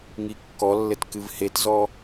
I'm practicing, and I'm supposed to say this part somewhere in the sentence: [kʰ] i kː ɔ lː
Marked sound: incorrect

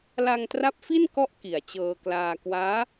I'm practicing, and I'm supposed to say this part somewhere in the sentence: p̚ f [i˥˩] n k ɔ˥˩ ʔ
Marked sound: correct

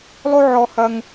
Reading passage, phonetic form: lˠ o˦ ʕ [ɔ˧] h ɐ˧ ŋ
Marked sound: correct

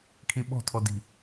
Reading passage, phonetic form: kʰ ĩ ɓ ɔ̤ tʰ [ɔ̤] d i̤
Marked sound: incorrect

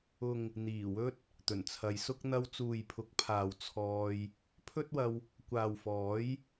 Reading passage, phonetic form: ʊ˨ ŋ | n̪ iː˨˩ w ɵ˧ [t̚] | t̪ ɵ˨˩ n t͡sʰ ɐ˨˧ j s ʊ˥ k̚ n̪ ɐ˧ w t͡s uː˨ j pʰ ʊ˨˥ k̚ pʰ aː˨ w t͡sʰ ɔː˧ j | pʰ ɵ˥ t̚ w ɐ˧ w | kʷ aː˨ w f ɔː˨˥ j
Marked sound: correct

